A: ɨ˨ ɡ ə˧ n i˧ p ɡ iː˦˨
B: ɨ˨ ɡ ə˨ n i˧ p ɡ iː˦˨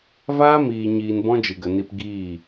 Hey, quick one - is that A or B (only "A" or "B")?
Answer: B